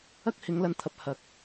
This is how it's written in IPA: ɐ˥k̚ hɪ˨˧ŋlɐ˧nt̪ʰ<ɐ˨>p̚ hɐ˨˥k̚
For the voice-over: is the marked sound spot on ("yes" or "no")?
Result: yes